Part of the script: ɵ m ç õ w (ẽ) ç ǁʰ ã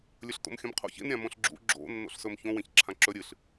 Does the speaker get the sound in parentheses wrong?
no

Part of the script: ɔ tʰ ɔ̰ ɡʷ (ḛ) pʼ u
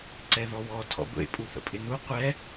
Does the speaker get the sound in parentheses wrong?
no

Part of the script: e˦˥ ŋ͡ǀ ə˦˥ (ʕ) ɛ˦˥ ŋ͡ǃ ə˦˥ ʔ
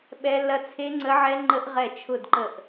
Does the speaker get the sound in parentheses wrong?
no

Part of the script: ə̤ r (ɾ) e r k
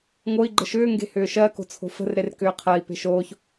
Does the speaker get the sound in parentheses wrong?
no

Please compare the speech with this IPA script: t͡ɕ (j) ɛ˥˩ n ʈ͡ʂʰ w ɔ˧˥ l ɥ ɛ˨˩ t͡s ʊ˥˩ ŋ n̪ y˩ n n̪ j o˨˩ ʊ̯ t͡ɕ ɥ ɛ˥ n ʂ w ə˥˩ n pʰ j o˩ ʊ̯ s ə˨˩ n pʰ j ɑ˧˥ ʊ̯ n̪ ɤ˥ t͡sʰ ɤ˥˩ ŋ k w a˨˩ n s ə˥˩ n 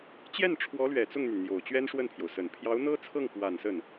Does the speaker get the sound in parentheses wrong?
no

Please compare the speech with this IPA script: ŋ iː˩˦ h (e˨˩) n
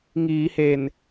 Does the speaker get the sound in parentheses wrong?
no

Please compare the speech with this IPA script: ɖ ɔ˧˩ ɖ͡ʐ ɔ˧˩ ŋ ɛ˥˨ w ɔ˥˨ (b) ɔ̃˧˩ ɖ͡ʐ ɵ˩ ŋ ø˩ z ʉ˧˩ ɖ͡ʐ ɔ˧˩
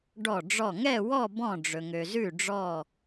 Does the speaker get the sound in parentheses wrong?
no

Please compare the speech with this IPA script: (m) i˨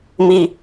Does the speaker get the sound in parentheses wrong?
no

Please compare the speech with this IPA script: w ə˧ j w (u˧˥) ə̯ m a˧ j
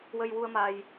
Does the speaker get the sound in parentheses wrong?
yes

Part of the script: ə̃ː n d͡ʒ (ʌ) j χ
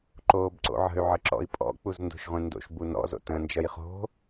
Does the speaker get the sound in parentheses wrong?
no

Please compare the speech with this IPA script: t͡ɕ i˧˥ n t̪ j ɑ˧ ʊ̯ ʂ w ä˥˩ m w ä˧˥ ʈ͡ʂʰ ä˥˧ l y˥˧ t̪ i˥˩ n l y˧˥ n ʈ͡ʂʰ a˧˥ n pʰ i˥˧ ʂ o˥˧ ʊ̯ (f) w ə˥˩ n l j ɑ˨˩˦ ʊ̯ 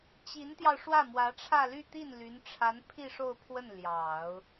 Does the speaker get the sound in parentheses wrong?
yes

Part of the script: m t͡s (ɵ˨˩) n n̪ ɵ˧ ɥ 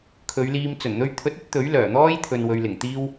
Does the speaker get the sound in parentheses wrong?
no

